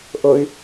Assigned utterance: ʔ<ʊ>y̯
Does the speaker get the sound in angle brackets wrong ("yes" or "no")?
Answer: no